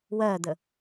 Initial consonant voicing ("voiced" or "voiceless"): voiced